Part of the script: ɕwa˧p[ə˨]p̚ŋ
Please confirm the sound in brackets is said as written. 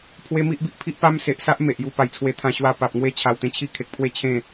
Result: no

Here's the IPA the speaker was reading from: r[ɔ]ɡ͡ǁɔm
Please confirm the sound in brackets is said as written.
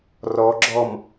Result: yes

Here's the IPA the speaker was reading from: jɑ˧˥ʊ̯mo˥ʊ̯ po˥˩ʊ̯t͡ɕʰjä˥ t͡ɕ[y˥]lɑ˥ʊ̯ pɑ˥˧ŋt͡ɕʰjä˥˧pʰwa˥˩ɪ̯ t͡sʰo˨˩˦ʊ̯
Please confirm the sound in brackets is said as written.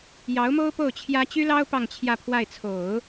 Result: yes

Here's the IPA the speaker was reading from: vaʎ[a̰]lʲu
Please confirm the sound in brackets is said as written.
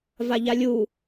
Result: no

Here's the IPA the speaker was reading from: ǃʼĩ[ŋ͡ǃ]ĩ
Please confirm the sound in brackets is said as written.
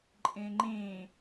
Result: yes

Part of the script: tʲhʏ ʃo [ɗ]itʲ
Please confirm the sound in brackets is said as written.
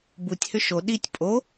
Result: yes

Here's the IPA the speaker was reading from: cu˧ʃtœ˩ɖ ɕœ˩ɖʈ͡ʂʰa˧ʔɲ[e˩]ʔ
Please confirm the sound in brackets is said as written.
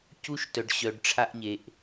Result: yes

